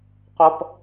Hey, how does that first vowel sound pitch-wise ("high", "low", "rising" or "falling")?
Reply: high